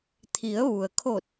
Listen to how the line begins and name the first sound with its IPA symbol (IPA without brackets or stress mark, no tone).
t̪ʰ